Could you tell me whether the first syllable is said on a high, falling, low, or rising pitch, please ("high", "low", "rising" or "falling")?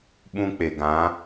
high